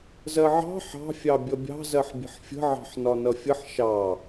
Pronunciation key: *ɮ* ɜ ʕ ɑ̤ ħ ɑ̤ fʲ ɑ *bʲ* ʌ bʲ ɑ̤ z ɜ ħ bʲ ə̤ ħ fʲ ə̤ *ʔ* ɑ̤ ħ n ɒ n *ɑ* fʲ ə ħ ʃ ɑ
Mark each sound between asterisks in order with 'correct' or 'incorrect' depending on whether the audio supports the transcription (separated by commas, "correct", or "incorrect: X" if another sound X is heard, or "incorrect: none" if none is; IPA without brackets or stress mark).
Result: incorrect: z, correct, incorrect: ʕ, incorrect: ʌ